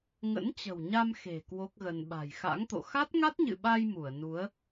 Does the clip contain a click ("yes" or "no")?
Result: no